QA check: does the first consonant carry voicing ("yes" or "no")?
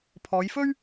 no